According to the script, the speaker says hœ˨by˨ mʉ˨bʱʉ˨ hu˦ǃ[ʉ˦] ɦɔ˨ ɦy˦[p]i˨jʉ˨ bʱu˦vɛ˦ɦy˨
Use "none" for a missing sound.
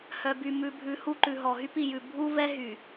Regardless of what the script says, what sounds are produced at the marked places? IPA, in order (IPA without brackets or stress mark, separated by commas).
ʉ˨, p